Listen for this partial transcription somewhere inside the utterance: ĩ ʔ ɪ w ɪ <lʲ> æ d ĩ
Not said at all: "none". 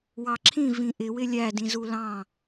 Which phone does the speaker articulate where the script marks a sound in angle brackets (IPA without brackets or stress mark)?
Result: lʲ